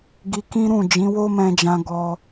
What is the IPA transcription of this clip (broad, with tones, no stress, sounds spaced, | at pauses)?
ɡ i˧ k ĩ˦ ɾ ũ˦˨ d͡ʒ ĩ˨˦ w o˦ m ɛ̃˧ d͡ʒ ã˧ ɡ ɔ˦